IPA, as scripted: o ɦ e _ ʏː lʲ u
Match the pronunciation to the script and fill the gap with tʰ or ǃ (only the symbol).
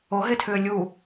tʰ